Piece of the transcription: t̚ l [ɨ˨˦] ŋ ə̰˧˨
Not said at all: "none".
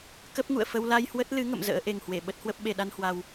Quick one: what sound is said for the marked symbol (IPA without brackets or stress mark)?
ɨ˨˦